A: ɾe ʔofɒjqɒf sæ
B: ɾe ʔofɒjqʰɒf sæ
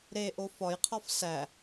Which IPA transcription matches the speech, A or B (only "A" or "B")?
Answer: B